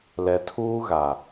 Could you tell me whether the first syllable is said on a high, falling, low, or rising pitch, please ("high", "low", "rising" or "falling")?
low